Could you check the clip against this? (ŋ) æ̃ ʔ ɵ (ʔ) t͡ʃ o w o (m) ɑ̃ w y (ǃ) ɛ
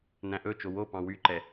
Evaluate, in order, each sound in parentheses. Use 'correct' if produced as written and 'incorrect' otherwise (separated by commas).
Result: incorrect, incorrect, incorrect, correct